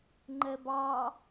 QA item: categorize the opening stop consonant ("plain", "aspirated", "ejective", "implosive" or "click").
click